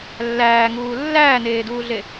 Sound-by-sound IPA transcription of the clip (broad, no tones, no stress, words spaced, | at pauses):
lːæːŋuː lːæːneːduːɮe